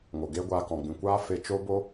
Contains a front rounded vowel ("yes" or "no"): no